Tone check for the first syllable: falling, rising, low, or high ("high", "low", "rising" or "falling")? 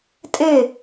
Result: falling